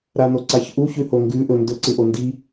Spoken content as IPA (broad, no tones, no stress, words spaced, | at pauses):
ɾanoǀaçʔu çʉhoŋɡʉ ʔɵndɵ ǀɨʔondi